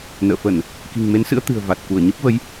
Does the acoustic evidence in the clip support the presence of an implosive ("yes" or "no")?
no